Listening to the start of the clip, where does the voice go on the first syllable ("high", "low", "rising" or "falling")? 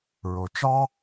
low